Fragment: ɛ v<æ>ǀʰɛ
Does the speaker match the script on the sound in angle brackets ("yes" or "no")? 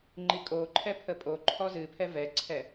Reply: no